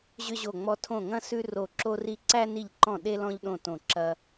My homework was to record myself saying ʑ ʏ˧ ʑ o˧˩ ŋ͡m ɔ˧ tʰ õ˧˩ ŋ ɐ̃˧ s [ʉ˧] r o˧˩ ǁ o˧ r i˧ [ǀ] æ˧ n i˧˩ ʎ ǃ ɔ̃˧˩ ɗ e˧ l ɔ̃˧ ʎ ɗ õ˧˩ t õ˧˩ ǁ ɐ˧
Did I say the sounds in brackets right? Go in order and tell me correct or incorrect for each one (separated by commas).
correct, correct